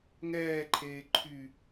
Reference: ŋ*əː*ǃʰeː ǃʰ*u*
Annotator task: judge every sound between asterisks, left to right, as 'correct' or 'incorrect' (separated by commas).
incorrect, incorrect